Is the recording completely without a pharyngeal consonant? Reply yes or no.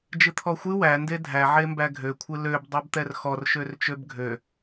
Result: no